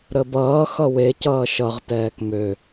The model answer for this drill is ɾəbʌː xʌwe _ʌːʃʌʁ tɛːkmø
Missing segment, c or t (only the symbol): c